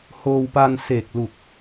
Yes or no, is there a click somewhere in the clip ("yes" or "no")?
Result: no